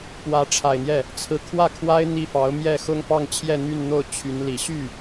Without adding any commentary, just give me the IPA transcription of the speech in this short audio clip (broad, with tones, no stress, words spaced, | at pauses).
pwä˧˥ʈ͡ʂʰa˨˩ɪ̯n̪jɛ˥˩ | t͡sʰɹ̩˧˥kʰwä˥˩kʰwa˥ɪ̯ n̪i˥˩fɑ˧˥ʊ̯ mjɛ˥˩xʊ˥ŋ pɑ˥˧ŋt͡ɕʰjɛ˥˧n̪y˥˧nn̪o˥˩ʊ̯ t͡ɕʰy˧˥nli˨˩ ɕy˥˩